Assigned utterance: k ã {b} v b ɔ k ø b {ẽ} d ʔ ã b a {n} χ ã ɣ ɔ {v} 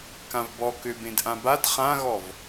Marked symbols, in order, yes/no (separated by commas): no, yes, no, yes